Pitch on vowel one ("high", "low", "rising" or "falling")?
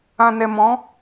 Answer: low